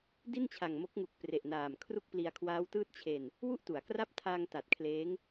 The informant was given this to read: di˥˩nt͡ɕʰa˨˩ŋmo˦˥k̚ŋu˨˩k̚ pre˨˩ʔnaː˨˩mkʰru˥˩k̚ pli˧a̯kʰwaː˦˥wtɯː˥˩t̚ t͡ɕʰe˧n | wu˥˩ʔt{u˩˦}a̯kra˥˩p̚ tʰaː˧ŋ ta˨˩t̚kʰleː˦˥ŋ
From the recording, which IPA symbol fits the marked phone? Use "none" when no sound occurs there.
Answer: u˩˦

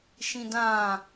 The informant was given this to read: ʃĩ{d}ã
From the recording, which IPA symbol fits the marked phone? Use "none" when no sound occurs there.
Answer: d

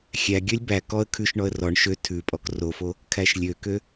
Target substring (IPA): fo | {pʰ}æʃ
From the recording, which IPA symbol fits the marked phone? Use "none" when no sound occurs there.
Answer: kʰ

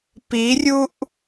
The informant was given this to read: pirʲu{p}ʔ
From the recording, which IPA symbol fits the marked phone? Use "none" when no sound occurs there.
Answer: none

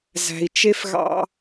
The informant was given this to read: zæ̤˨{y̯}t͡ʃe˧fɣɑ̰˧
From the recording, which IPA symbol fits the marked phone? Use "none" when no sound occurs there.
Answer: i̯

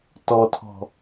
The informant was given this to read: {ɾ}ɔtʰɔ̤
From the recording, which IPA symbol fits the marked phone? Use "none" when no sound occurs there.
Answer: t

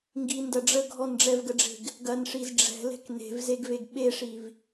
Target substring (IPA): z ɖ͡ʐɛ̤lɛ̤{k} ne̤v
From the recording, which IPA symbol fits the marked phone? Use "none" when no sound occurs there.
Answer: k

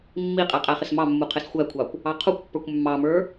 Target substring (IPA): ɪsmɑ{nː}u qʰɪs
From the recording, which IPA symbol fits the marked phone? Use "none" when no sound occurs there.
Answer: mː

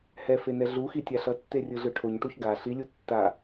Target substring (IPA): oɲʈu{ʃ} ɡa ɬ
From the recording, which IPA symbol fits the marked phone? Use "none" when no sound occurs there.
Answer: ç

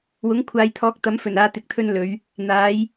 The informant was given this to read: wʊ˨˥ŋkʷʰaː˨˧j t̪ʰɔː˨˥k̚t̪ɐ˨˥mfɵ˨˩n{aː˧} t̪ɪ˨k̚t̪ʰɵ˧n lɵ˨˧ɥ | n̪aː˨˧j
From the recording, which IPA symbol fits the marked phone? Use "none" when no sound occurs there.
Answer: aː˧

